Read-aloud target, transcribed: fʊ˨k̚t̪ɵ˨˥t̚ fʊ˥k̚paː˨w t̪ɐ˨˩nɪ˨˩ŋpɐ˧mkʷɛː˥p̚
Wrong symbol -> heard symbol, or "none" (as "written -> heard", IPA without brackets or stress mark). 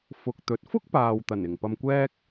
p̚ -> k̚